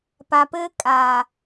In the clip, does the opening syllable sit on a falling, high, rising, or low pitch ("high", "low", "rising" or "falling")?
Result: low